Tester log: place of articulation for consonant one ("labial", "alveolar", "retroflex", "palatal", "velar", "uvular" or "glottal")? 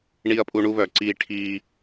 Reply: retroflex